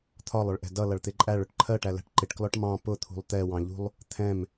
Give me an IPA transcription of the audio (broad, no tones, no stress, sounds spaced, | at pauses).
t̪ʰ ɒ lˠ ʊ ɭ ʔ ɛ̤ d ʌ l ʌ ɭ t̪ ɪ ǃʼ æ ɭ ʊ ʈ ǃʰ ɜ ʈ æ l æ̤ ʈ ǃ ɪ ʈ k l ɔ ʈ m ɑ̃ p ʊ t̪ʰ ṳ lˠ t̪ ɛ w ɑ̃ ʎ ṳ lˠ | t̪ʰ ɛ̃ m